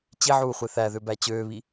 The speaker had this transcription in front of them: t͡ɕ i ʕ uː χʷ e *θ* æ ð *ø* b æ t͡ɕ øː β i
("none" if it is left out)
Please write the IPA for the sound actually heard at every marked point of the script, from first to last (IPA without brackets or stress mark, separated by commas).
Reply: θ, ø